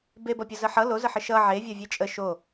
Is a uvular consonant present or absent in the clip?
absent